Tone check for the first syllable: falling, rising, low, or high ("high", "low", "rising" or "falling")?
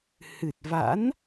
low